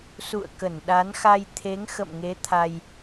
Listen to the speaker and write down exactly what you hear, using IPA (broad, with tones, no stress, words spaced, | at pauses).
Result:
sṵ˧˨ə̯ kə˧˩nɗa˨˦nxa˧j t̪ʰe˨˦ŋ xə̰˧˨mŋe˨˦ t̪ʰa˧j